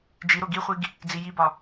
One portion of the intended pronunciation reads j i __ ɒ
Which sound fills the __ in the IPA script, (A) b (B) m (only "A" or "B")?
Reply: A